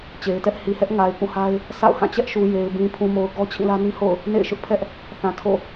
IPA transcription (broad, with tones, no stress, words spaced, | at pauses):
t͡ɕe˨ɪ̯tɛ˦ʔ hi˨hɛ˦ʔ ŋa˨ɪ̯kũ˦˨ha˦ɪ̯ | sa̰˦˨ʊ̯hã˦˨ t͡ɕɛ˦ʔʃu˨ je˨ɪ̯ bĩ˨pʰũ˨mo˨ʊ̯ ɡɔ˦ t͡ɕʰĩ˦˨lä˦nĩ˦ho̰˦˨ʊ̯ | nḛ˦˨ɪ̯ʃʊ˦ʔpʰɛ˦ʔ | θã˨tʰo̰˦˨